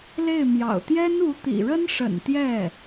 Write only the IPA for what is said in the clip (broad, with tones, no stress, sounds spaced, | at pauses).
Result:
l e˥˩ ɪ̯ m j ɑ̰˨˩ ʊ̯ t̪ j ɛ˥ n u˧˥ t̪ ḭ˨˩ ɻ ə˥ n ʂ ə̰˨˩ n t̪ j ɛ˥˩